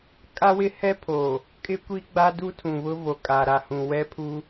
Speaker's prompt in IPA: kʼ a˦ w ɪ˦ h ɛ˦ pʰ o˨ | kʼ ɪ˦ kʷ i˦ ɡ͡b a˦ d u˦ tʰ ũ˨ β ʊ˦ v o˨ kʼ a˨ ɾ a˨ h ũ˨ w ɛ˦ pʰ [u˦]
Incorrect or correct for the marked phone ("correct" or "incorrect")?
correct